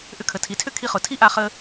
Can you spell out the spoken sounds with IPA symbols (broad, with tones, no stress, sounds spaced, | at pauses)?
ʔ ʏ˧ kʰ ə˩ tʰ i˩ tʰ ʏ˥ kʰ i˧ χ ʊ˩ tʰ i˥ ʔ a˧ χ ə˧